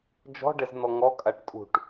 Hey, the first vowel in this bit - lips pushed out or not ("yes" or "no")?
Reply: yes